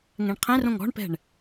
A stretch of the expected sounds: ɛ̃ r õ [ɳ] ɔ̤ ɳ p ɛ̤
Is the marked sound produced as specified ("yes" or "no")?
no